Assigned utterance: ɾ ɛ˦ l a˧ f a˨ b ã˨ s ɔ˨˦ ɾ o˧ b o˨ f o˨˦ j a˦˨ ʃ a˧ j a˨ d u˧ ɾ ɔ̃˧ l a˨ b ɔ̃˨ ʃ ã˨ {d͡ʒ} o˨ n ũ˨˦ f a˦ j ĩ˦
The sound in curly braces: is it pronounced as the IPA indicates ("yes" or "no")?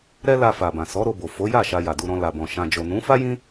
yes